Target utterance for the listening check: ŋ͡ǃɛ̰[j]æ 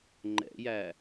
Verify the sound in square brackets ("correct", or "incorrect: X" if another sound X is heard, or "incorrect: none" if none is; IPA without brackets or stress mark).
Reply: correct